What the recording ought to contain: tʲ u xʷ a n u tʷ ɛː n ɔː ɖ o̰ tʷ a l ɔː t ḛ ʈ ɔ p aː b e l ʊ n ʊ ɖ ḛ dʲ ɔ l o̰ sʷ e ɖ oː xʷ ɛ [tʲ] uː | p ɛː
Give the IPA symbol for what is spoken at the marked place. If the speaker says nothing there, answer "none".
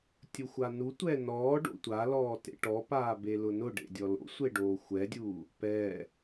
dʲ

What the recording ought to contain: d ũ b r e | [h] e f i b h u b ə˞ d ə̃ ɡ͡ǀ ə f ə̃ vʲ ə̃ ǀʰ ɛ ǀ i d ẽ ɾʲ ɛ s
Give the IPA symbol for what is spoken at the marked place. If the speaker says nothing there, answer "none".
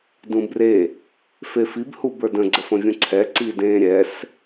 f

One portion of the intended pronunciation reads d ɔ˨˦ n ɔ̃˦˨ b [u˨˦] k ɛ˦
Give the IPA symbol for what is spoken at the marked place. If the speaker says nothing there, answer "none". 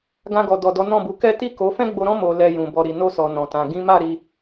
u˨˦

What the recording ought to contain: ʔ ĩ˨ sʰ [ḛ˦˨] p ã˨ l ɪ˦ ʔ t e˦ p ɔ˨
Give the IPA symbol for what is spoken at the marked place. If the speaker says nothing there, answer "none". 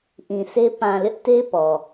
e˦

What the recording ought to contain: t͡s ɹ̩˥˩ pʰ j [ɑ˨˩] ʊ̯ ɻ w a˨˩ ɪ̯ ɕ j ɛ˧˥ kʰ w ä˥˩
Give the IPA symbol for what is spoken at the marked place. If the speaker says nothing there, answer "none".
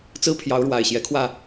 ɑ˧˥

